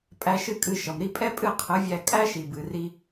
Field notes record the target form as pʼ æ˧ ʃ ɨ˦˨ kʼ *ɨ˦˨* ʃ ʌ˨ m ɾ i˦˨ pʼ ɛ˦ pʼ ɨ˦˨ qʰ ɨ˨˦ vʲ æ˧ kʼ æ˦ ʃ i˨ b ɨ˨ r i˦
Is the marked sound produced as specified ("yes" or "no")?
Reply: yes